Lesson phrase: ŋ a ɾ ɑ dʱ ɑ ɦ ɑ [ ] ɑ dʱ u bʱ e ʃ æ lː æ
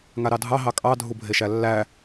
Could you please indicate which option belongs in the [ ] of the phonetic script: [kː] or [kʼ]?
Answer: kʼ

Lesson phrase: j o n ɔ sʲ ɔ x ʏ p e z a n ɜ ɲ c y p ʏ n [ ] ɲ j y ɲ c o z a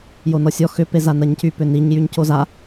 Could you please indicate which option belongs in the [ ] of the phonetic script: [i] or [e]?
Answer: i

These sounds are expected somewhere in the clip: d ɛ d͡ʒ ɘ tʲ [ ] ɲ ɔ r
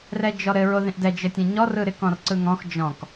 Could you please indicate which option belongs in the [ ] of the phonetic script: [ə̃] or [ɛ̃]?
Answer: ɛ̃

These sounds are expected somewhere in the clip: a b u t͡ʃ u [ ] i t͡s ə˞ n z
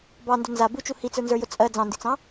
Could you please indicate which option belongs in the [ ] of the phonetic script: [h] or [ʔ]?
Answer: h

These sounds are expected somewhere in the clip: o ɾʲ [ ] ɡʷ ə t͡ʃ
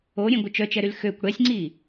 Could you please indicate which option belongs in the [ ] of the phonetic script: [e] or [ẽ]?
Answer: ẽ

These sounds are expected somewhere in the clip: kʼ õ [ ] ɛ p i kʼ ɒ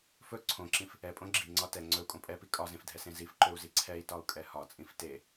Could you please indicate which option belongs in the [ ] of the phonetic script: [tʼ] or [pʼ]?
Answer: pʼ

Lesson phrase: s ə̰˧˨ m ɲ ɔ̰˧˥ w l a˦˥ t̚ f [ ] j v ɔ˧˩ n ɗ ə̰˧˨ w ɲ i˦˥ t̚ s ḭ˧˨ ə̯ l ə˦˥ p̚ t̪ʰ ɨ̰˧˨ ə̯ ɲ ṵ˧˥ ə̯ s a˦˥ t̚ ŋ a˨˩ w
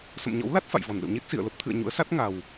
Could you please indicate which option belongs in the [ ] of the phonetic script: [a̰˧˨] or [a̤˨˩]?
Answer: a̰˧˨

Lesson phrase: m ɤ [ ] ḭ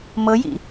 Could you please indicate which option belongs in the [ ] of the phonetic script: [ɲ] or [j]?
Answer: j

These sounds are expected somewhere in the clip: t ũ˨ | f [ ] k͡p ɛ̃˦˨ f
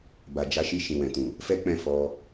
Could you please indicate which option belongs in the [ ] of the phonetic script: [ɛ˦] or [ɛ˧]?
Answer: ɛ˦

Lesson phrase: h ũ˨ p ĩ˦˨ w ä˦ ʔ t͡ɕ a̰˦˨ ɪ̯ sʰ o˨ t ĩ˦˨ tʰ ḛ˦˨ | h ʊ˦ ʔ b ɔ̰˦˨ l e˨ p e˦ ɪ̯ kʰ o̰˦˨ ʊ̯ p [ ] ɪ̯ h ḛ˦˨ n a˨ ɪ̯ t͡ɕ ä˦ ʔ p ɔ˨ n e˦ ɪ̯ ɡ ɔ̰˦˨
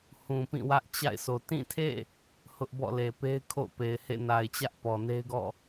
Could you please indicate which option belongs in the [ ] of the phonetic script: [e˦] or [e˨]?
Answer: e˨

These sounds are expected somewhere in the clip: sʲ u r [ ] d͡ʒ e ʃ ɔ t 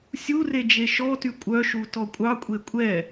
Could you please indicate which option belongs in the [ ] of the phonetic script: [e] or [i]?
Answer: e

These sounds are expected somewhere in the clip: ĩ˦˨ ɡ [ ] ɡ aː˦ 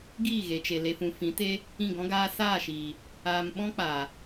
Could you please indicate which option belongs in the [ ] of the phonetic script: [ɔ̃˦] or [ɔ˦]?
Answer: ɔ̃˦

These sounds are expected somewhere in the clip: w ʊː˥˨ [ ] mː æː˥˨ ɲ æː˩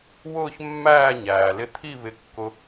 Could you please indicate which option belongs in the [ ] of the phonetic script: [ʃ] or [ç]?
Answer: ç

